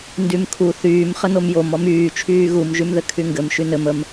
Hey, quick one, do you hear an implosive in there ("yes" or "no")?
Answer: no